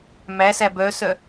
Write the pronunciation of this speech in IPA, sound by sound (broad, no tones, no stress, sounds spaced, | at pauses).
m æ s æ b œ s œ